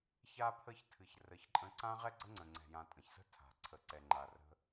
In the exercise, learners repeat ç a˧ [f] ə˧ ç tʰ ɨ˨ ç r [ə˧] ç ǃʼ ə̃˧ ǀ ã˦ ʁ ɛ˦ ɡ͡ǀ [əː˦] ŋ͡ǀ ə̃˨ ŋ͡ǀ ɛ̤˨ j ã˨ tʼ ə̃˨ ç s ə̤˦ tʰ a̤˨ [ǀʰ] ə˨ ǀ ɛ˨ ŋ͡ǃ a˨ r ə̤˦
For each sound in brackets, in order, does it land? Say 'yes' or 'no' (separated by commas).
no, no, no, yes